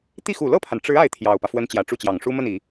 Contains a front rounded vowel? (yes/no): no